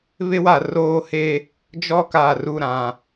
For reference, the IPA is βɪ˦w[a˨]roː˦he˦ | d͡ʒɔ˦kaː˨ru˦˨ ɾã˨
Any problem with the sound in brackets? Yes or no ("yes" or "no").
no